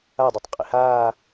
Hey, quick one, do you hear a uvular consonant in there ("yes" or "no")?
yes